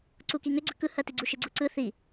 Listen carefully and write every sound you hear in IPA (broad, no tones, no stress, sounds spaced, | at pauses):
ǀ u k i ŋ ʏ ɡ͡ǀ ʏ k ɯ h ɜ t i ɡ͡ǀ u ʃ ɯ ɡ͡ǀ u ǀ ɯ θ i